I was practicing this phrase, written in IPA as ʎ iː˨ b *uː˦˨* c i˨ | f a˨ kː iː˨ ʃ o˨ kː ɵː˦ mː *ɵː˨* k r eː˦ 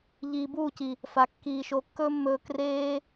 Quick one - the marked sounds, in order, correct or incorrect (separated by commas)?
correct, incorrect